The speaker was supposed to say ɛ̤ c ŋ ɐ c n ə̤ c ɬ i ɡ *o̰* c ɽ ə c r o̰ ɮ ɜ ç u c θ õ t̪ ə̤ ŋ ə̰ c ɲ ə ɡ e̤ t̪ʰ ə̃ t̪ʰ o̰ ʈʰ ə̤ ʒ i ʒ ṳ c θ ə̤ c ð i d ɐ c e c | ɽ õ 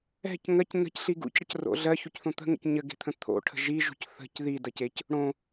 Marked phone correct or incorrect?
incorrect